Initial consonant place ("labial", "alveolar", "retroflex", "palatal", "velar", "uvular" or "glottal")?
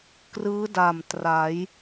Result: velar